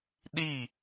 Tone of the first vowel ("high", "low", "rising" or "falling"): falling